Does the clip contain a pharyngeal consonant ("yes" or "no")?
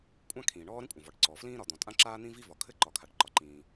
no